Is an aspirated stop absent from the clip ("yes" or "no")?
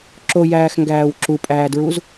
yes